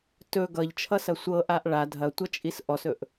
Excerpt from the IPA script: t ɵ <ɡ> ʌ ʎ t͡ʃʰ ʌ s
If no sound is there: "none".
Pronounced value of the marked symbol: ɡ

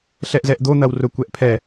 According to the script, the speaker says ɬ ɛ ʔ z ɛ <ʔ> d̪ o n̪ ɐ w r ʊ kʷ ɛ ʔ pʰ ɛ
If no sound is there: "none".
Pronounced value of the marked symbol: ʔ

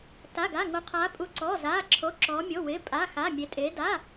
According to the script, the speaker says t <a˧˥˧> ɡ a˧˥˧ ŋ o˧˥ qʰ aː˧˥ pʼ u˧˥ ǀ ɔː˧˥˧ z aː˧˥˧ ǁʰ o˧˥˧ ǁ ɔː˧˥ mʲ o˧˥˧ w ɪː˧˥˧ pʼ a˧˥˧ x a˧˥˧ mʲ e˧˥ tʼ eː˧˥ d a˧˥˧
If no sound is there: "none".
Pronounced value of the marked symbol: a˧˥˧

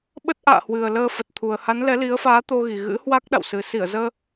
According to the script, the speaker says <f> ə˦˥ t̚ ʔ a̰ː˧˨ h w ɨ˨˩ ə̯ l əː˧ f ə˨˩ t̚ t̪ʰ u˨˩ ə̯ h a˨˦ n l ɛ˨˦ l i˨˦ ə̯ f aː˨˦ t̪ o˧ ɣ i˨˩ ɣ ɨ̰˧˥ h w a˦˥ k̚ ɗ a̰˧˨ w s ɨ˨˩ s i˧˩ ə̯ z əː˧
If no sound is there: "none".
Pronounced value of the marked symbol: ɓ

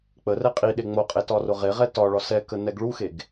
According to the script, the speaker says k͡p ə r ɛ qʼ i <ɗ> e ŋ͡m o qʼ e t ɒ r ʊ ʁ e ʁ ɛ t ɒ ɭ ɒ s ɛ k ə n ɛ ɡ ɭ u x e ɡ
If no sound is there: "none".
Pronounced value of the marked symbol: ɗ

